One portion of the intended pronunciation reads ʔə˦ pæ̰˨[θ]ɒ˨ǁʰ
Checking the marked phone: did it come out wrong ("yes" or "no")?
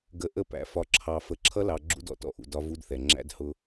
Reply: yes